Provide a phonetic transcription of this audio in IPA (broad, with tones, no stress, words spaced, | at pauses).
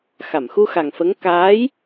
xa˨˩˨mxu˧xa˨˩ŋfə˧˥ŋ kaː˧˥j